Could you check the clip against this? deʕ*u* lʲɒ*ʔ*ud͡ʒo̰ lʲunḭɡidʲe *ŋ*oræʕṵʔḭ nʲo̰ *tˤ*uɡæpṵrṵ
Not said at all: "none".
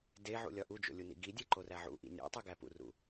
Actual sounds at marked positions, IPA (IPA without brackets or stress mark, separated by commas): ṵ, ʔ, ǃ, tˤ